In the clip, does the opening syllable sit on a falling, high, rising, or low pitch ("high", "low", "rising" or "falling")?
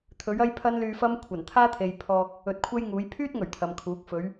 rising